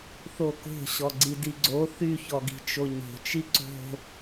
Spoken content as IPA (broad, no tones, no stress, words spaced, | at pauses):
θoko̤ ɕɔɡ͡ǀidiɡ͡ǀo θy çɔɡi̤t͡ʃoɲo̤ t͡ʃiǀo̤